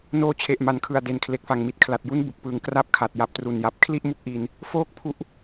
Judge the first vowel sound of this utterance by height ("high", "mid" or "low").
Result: mid